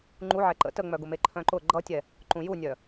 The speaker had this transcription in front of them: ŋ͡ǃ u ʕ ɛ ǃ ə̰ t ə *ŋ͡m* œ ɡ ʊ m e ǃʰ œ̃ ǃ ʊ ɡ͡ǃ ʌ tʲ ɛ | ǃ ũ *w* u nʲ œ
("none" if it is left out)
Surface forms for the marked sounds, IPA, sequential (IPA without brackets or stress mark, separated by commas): ŋ͡m, j